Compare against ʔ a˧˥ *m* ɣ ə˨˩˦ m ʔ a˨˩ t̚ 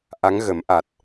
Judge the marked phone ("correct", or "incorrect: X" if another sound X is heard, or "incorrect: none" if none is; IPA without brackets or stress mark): incorrect: ŋ